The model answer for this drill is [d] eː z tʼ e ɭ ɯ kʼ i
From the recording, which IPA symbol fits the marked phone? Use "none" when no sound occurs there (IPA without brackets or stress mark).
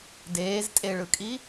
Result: d